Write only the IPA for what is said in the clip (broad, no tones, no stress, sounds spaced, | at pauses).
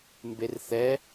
m b e r θ ɛ